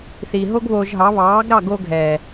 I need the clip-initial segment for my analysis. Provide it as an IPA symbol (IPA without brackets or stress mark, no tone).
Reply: θ